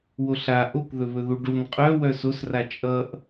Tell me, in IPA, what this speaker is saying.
w o ɬ a ʔ o k ð ɵ β ɵ ð u ɖ u n qʼ œ w œ s o s r a t͡ʃʼ ʌ ʔ

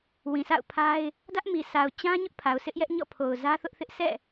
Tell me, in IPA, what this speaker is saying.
w ĩ˨ s a̰˦˨ ʊ̯ pʰ a˦ ɪ̯ | d ä˦ ʔ m i˨ s a˨ ʊ̯ t͡ɕ ã˦ ɲ ʊ˦ ʔ pʰ a˨ ʊ̯ s ɪ˦ ʔ j ɛ˦ ʔ ɲ ɔ̰˦˨ pʰ o˨ ʊ̯ z ä˦ θ ʊ˦ ʔ θ ɪ˦ ʔ sʰ ɛ̰˦˨

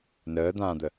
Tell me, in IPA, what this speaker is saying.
n əː d̪ ãː d̪ ə

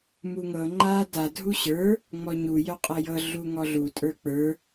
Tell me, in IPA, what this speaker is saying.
m u ŋ ɤ ŋ͡ǃ a d a dʱ u ɕ ə˞ | ŋ͡m ɔ ɲ u j œ qʼ ɤ j ɤ ɮ u ŋ ɔ ɮ u tʼ ə˞ k͡p ə˞

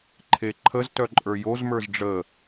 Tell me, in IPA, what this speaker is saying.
ǃʰ e ǃʰ ə z t œ ǃʼ ə˞ j o z m ə˞ z ɖ͡ʐ ə

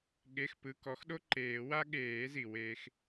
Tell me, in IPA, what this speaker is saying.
ɠ e˩˧˩ x p ɯ˩˧˩ k ɔ˩˥ x ɗ o˥ ǃ eː˨˩˦ w a˥ ɠ eː˨˩˦ z i˩ w eː˧ x

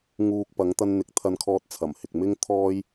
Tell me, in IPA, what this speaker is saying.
ŋ uː˧ k̚ p ɐ˨˧ ŋ t̪ ɐ˧ n n̪ ɪ˨˥ k̚ t̪ʰ ɐ˧ n kʰ ɔː˧ t̚ t͡sʰ ɐ˨˩ m h ɪ˨ k̚ m ɪ˥ ŋ t̪ʰ ɔː˥ j

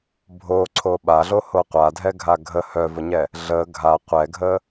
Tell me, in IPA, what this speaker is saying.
bʱ o ǀʰ o ɓ a ɮ o h o qʷ a dʱ ɛ ɡʱ a ɡʱ ə h œ v ə ɲ ɛ | ɮ ə ɡʱ a qʷ ɛ ɡʱ ə

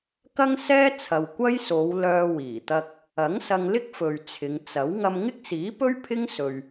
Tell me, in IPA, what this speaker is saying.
k ɐ˥ ŋ s ɛː˥ t͡sʰ ɐ˨ w kʷ ɐ˥ j s o˨˧ w l œː˧ w iː˨˩ t̪ ɐ˧ k̚ | ɐ˨˥ ŋ s ɐ˧ ŋ l ɪ˥ k̚ f ɵ˨ ɥ t͡sʰ ɪ˨˧ ŋ t͡s ɐ˨˥ w ŋ ɐ˧ m ŋ ɪ˥ k̚ s iː˨˥ p ɵ˥ ɥ pʰ ɪ˥ ŋ s ɵ˨ ɥ

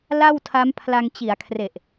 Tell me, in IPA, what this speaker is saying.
l a˥˩ w tʰ a˦˥ m pʰ l a˧ ŋ t͡ɕ i˩˦ a̯ kʰ r e˨˩ ʔ

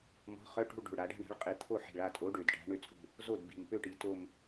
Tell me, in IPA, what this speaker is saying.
m ɔ̤˨˥ χ œ˧˥˧ ʈ o̤˥˧ ɭ ɖ o̤˨˩ ɭ ɽ a˩˧ ɖ a̤˥˧ ɳ a̤˨˥ ɭ qʼ i˨˩ t̪ʰ o˥˩ ħ i̤˨˩ ɭ a˥˩ tʼ o˨˥ ɖ ø˨˩ d ʈ a̤˨˥ ɳ ø˥˩ t͡sʼ ṳ˥˩ | z o˥˩ d b i̤˨˩ m p ø˥˧ ʈ i˩˧ t o˥˧ m

